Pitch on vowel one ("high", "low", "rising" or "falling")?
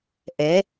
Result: rising